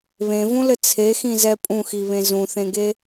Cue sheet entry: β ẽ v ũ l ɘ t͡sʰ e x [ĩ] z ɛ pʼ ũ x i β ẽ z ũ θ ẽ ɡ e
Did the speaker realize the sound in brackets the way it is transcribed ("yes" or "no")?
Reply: yes